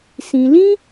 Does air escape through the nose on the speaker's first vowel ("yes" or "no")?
yes